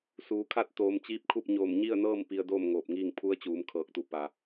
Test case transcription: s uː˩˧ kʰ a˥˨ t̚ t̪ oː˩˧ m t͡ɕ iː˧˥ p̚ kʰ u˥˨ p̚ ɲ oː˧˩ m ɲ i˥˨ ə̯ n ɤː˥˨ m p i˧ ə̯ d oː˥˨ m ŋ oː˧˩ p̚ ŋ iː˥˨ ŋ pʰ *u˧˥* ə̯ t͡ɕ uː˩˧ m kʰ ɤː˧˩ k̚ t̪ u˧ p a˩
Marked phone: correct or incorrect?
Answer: correct